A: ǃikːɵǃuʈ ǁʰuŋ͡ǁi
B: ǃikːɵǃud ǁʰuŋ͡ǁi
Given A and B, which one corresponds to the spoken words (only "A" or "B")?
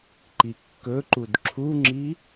B